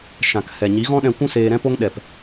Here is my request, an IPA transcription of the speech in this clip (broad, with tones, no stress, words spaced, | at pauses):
ʃã˨khɛ˨ ɲi˨˦ɣɔ̃˦ɗɛ̃˧ kʷũ˦seː˧ɾɛ̃˦po˦ŋ ɗɛ˨p